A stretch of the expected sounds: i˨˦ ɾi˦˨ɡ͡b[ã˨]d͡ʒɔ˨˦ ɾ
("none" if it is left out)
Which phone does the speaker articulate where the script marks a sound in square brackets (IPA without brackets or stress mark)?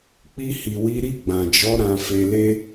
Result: ã˨